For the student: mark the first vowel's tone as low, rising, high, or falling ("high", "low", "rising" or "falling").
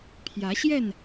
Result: rising